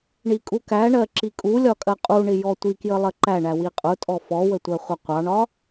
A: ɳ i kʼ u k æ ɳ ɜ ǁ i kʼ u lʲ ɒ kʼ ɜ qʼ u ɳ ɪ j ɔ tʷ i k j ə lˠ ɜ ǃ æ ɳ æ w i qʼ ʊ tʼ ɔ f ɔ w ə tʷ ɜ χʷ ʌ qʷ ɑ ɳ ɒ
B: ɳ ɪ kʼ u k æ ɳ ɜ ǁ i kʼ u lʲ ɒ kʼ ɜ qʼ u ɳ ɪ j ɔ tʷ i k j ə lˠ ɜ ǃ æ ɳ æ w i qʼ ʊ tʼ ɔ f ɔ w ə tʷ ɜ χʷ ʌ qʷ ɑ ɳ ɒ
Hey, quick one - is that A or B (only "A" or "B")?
A